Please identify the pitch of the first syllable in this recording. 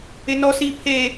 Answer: high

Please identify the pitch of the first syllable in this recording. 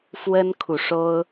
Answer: high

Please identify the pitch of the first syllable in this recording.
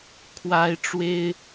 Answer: high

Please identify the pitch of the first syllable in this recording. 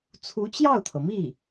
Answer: rising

